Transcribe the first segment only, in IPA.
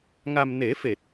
ŋ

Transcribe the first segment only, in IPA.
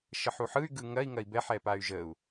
ʃ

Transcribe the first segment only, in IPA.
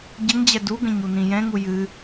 ɟ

